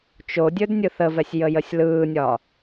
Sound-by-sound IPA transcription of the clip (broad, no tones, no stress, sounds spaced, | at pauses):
t͡ʃ o dʲ ɵ d nʲ ɯ θ ə v ɛ sʲ j ə j ə sʲ l ɯː nʲ ɒ